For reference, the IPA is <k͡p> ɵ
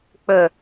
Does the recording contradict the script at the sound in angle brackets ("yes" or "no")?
no